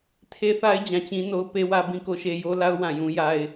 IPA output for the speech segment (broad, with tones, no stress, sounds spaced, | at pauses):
tʰ e˦ θ a˦ ɪ̯ d͡ʑ ã˨ t͡ɕ ĩ˦ n o˦ ʊ̯ p e˦ w ä˦ b ĩ˦ k o˦ ʃ e˦ j o˦ l a˦ ʊ̯ w ã˨ j ũ˦ j a˦ ɪ̯